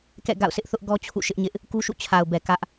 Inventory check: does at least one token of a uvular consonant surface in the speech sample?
no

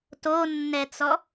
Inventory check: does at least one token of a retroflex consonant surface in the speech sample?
no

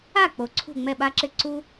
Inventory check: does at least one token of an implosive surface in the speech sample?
yes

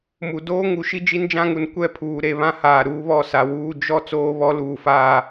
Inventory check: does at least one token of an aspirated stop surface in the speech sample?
yes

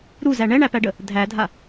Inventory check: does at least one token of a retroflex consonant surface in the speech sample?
yes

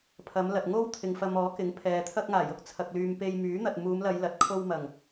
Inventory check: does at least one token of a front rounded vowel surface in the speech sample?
yes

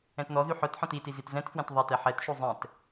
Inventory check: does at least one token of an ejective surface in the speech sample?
no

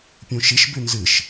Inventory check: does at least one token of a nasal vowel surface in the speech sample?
yes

